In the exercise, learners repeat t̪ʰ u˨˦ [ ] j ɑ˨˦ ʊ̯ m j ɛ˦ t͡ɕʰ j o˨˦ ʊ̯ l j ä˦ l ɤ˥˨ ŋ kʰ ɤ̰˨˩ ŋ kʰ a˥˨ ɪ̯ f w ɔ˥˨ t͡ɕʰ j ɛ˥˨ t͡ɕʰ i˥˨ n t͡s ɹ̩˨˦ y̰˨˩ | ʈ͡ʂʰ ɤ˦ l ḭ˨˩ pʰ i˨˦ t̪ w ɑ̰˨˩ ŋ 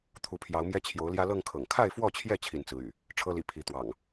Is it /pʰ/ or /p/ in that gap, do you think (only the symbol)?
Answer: pʰ